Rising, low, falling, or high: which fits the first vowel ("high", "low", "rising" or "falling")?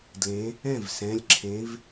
rising